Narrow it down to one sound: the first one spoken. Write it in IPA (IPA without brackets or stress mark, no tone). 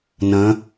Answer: n